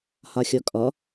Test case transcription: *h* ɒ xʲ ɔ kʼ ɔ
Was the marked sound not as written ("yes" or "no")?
no